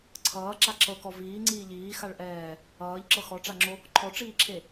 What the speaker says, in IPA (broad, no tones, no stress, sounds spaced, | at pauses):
ǀʰ ʌː ǁ a ǁ ɤ k ɔ v iː ŋ͡ǀ iː ʎ iː x a ɭ ʔ ɛː | ʌː ʎ ǁ ɤ x ɔ ʈ͡ʂ a ŋ͡ǁ o | ǃʰ ɔ ʈ͡ʂ iː ǁʰ e